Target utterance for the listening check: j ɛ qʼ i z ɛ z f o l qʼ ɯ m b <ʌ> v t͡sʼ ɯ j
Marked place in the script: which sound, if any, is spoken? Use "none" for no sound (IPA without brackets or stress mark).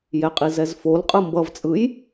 ʌ